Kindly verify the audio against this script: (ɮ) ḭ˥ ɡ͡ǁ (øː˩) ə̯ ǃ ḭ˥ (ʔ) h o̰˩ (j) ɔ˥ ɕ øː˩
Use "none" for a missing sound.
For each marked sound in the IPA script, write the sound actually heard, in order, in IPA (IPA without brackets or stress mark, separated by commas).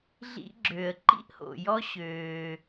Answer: ɮ, øː˩, ʔ, j